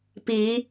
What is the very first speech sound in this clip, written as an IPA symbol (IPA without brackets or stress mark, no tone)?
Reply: p